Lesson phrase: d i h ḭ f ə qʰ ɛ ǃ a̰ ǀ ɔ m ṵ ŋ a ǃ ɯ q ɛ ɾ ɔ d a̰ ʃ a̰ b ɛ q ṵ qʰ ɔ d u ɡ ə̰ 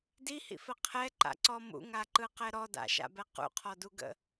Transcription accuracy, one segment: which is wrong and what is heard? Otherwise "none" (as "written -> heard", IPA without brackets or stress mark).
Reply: none